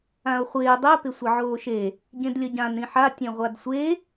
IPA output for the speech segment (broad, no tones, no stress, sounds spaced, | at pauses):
ã o̯ χʷ ɪː dˤ ɛ p ɪ sʷ ɘ ʕ oː ʃ e | ɟ ẽ d lʲ ʌ ɟ ã n ɾ ĩ ħ a tʲ ẽ ʁʷ a d sʷ e